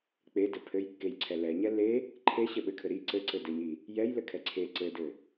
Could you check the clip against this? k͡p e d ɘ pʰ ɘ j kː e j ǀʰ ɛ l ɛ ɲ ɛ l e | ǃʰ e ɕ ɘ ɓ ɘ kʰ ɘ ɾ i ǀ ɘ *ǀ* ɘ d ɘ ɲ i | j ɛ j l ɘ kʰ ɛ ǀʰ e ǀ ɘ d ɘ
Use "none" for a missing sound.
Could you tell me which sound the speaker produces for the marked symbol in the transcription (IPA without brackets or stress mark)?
ǀ